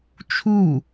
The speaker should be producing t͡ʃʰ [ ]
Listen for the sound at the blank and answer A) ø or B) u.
B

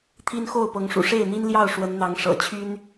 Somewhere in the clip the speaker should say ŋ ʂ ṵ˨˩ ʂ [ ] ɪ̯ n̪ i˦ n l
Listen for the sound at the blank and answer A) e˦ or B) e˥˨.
B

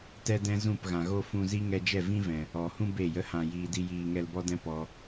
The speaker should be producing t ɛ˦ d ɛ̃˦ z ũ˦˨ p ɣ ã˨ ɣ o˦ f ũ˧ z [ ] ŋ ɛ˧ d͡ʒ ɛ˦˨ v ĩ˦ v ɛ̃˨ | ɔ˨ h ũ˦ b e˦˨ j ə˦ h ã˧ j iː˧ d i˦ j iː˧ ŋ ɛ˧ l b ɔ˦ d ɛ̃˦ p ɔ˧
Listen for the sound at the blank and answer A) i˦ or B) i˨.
A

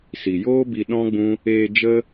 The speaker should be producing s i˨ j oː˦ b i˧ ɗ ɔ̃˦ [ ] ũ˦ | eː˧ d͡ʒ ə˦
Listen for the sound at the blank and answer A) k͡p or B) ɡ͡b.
B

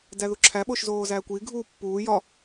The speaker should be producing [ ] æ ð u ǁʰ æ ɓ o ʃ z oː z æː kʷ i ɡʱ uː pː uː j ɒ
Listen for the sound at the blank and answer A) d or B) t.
A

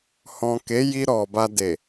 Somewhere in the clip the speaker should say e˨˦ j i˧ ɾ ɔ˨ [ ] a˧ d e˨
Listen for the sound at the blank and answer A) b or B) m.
A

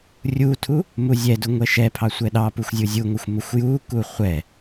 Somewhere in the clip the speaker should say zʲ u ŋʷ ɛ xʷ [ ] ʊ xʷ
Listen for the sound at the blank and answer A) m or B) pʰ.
A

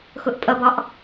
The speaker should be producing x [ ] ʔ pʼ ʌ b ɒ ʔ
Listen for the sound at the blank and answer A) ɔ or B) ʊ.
B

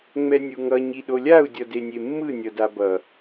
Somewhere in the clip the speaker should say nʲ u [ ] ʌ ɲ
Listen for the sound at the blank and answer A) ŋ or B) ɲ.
A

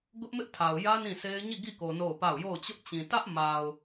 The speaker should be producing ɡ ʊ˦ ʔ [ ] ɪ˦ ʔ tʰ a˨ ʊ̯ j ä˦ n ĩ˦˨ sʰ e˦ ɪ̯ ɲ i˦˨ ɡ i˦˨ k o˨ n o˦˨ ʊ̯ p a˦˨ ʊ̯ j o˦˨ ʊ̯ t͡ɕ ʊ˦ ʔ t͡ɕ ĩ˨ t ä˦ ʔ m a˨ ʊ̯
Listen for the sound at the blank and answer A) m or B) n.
A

